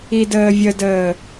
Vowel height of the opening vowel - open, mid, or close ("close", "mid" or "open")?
close